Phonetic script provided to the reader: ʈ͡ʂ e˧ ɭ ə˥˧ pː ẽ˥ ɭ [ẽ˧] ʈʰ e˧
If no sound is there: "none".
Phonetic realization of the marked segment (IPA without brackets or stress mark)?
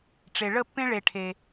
e˧